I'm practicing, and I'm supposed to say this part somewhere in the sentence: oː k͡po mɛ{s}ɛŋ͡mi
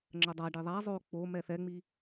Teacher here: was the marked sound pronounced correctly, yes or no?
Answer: no